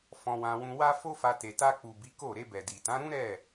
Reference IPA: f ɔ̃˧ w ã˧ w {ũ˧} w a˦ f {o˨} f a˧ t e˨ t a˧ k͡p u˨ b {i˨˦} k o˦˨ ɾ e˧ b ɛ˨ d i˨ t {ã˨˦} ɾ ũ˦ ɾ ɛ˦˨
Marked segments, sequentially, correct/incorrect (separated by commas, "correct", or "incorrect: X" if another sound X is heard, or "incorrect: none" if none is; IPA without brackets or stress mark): correct, incorrect: o˦, correct, correct